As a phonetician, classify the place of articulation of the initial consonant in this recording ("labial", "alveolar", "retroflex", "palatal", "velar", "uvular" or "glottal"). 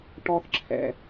retroflex